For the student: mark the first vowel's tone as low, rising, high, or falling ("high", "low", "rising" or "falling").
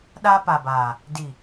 high